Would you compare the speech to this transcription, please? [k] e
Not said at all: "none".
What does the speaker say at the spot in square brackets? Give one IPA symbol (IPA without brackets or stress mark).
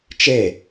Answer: t͡ʃ